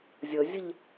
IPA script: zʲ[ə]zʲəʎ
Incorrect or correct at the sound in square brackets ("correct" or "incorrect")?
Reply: correct